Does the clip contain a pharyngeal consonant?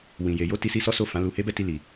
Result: no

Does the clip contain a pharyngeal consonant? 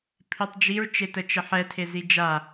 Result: yes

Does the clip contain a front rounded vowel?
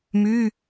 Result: yes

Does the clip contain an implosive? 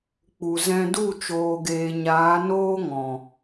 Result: no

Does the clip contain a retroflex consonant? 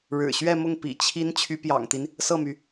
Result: yes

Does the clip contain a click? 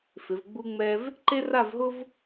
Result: yes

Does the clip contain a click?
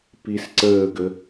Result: yes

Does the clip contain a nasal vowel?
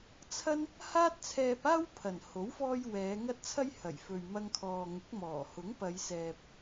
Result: no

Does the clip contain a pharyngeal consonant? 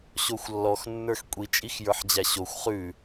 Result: yes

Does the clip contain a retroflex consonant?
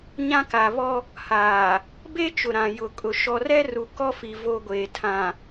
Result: no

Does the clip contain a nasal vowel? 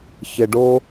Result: no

